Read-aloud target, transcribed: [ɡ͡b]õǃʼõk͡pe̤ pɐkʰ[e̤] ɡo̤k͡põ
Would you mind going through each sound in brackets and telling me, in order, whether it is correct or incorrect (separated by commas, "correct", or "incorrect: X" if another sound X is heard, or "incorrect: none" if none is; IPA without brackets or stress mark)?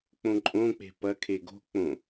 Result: incorrect: k͡p, incorrect: e